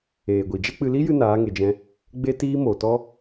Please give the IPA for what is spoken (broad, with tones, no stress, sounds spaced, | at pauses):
eː˨ ɡʷ i˨ d͡ʒ ɛ˦ k͡p ɨ˧ l i˦ j ɨ˧ n aː˨˦ ŋ e˨ d͡ʒ ɛ̃˧ | ɡ͡b e˦ t iː˦ m o˨ t ɔ˦